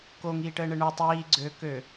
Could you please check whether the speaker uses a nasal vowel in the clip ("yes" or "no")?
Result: no